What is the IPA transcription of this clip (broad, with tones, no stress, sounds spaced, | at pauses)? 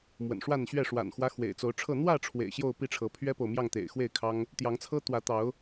m w ə̰˨˩ n ʂ w a˥˨ n ɕ ɥ ɛ˥˨ ʂ w a̰˨˩ n x w ä˦ x w ḛ˨˩ ɪ̯ t͡s o˨˦ ʊ̯ ʈ͡ʂʰ ɤ˥˨ n̪ w ä˥˨ ʈ͡ʂʰ w ḛ˨˩ ɪ̯ ɕ j o˥˨ ʊ̯ p i˥˨ ʈ͡ʂʰ ɤ˨˦ pʰ ɥ ɛ˦ p o˨ ʊ̯ m j ɑ˥˨ ŋ t̪ ḛ˨˩ ɪ̯ x w e˥˨ ɪ̯ kʰ ɑ˦ ŋ | t̪ j ɑ˨˦ ŋ t͡sʰ ɤ˦ t̪ w ä˨˦ t̪ ɑ˨˦ ʊ̯